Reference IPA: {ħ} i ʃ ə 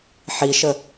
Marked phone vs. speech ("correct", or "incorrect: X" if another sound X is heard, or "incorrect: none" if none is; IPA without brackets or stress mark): correct